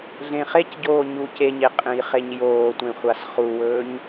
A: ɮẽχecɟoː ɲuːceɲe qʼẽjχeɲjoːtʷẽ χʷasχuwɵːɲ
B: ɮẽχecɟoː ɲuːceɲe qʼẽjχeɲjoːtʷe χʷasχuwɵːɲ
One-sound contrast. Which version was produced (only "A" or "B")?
A